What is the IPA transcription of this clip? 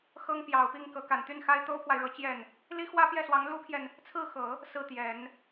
x ɤ˥ ŋ p j ɑ˨˩ ʊ̯ p i˥˩ ŋ k ɤ˧˥ k a˨˩ n t̪ y˥˩ n x a˥ ɪ̯ t̪ o˥ ʊ̯ pʰ w a˨ ɪ̯ ɻ ɤ˧˥ t͡ɕ j ɛ˥˩ n | l i˥ x w ä˥ p j ɛ˥˩ s w ɑ˧˥ ŋ l u˥ pʰ j ɛ˨ n | t͡sʰ ɹ̩˥˩ x ɤ˨˩˦ | s ɹ̩˥˩ t̪ j ɛ˨˩˦ n

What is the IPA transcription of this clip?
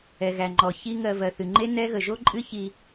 ɛ˨ ɣ æ˨ ŋ͡ǃ ɔ˨ ç i˦ ŋ ɜ˧ v ɜ˨ θ ɨ˨ ŋ͡ǃ e˦ n ɛ˦ ɣ ə˨ ʒ o˦ ǃʼ ɨ˦ ç i˧

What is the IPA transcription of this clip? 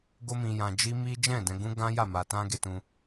ɡ o˦ m ĩ˧ j ã˧ d͡ʒ i˦ m i˦ d͡ʒ ɛ̃˦˨ d ɛ̃˧ ɡ ũ˦ ɡ ã˦ j a˦˨ m a˧ t ã˦ ɡ e˧ t ũ˧

